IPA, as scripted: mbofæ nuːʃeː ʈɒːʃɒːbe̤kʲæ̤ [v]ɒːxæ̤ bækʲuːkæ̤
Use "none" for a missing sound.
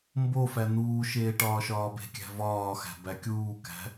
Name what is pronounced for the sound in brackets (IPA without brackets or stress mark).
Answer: v